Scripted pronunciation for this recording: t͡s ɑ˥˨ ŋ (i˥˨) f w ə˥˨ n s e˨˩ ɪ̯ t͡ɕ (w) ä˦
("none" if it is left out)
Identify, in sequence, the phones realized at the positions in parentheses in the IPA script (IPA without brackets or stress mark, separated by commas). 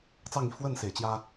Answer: i˥˨, j